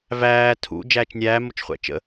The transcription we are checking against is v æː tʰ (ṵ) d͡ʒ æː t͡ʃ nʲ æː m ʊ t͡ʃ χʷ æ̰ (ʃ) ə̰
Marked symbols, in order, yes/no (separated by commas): yes, no